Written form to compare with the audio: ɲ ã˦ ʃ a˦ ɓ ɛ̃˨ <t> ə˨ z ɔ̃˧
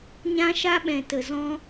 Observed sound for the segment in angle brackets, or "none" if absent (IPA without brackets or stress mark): t